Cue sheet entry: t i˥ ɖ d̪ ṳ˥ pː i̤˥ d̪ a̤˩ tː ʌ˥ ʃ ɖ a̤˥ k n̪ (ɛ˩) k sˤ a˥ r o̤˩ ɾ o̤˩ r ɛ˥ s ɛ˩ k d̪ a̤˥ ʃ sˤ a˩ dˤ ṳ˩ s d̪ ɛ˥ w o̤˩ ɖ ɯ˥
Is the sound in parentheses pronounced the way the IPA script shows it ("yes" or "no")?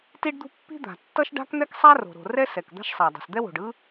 no